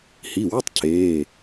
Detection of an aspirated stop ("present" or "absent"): present